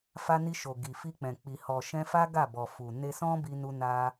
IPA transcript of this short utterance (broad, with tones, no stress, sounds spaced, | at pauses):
f a˧ n i˧ ʃ o˨ ɡ i˨ f i˧ k͡p ɛ̃˨ k͡p i˨ h ɔ˨ ʃ ɛ̃˧ f a˦ ɡ a˦˨ b ɔ˨ f u˨ n e˧ s ɔ̃˦ b i˧ n u˧ n a˧